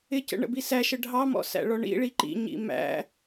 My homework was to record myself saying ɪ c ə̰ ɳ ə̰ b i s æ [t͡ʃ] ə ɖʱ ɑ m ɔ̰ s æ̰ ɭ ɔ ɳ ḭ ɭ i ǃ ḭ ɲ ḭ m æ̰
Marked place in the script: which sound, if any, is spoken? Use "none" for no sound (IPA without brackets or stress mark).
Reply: ʃ